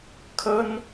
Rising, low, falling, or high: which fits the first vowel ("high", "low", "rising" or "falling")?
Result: high